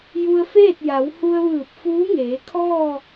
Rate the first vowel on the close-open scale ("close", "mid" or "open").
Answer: close